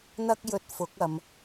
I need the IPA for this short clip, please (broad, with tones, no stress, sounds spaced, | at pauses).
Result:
n̪ ɐ˥ k̚ j ɵ˧ t̚ f ʊ˨˥ k̚ ɐ˨ m